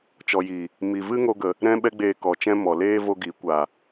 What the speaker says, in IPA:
t͡ʃɔ˨ji˨ | mi˨vɨ˦ ŋo˦ɡə˨ | ɾɛ̃˦ɓɛ˦ɡ͡beː˧ kɔ˨t͡ʃɛ̃˦mɔ˨ leː˦ vo˦ɡi˨˦kʷa˨

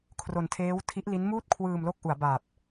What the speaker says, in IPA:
kʰro˧ntʰeː˦˥wtʰi˦˥ʔ li˦˥nmuː˥˩t̚kʰwɯː˧mlo˦˥k̚ ʔu˩˦a̯ba˨˩p̚

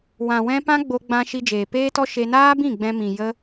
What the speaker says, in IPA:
wã˨wɛ̃˧ pã˦ɡ͡bo˧ɡ͡bã˧ ʃi˧d͡ʒeː˨peː˦tɔ˦ ʃe˧naː˦bĩ˦˨ ɡ͡bɛ̃˧mĩ˨ jə˦

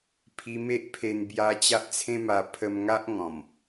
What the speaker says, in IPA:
pʰi˧me˦ʔpʰe˧n bja˧ t͡ɕa˦ʔt͡sʰẽ˦ ma˧ pʰə˧mŋa˦ʔ ŋɔ̃˨˩m

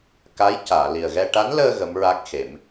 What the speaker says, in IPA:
ka˧˥j caː˨˩˨li˨˩ə̯ɣɛ˧ ʈa˧˥nləː˧ ɣə˧˥mɹa˦˥k̚xe˨˩˦m

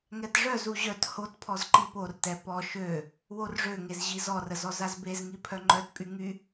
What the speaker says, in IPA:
ŋɛtʐœzu ʑœt hotpʰɔz ǃiportɛ pɔ ʃø | worʐøŋez ʑizɔrə zɔzazbezŋi pʰœŋ͡ǃœtpʼy ŋy

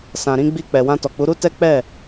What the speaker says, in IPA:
sã˨ɾĩ˧ɡ͡bi˧ k͡pɛ˨wã˧tɔ˨k͡pu˨˦ ɾu˦tɛ˦k͡pɛ˦˨

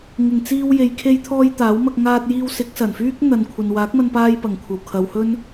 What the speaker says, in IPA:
ŋɪ˨˩ŋt͡siː˧w je˨jkʰe˧jt̪ʰɔː˧j t̪aː˨˥wmɐ˧k̚ ŋaː˧t̚jiː˧wsɪ˨˥k̚ sɐ˨˩nfyː˥k̚ n̪ɐ˨nkʷʰɐ˨n waː˨˥k̚mɐ˧npaː˧j pɐ˨˩ŋkʷʰɐ˨˩w kʰɐ˨˧whɵ˥n

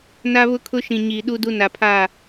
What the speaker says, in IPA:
na˦βʊ˦kʰʊ˦ʃĩ˨ ɲiː˨ɗu˦du˦ na˨pʰa˦˨

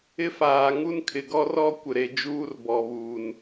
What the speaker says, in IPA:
ɪ˦faː˨ŋu˦nkʰɪ˨ ɡɔ˦rɔ˦ kʷɪ˨ɾe˨d͡ʒuː˦r bɔ˨βuː˨n

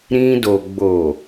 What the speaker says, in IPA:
ɾĩ˧do˨ ɡ͡bo˨

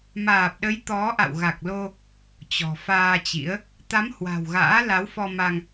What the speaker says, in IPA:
maː˨˩p̚ɗə˨˦j t̪ɔ˨˦ʔa̰˧˨w ɣa˨˩k̚lo˧ | t͡ɕɔ̤˨˩ faː˧t͡ɕḭ˧˥ə̯ | t̪a˨˦m hwa̤˨˩wɣa̰ː˧˥ la˨˦wfɔ˧ma˧ŋ

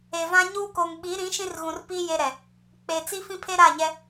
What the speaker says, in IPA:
e˨vã˦ ɲuː˦ koː˨ŋɓi˨˦ɾĩ˨˦ ʃĩ˦rɣũ˨rpiː˦ je˦ɾɛ˨ | k͡pe˨ t͡si˦fĩ˦pʰe˦ ɾa˦˨ɲɛ˦

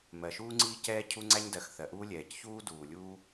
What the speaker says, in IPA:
mɜ˩ʃuː˥ŋ͡ǀiː˥ cɛː˥cʰu˥ ŋ͡ǀæ˥ɲdɜ˩x θɜ˩ʔuː˥lʲɛː˩c çuː˥duː˩ lʲuː˥

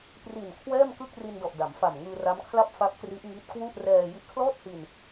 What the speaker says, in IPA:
pri˨˩nkʰwɛː˥˩mkɯ˥˩k̚ ri˧ndɔ˨˩ʔ da˩˦mfa˨˩mŋɯː˧ ra˦˥mkʰla˥˩p̚fa˦˥p̚tri˦˥ʔ ŋi˦˥t̚kwu˥˩ʔ rɛː˧ ji˦˥ʔkʰlɔː˥˩t̚hi˧n

